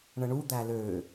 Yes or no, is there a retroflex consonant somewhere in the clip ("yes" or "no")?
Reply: yes